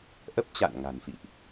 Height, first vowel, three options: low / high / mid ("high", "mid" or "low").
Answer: mid